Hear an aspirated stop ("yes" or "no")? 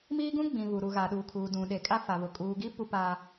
yes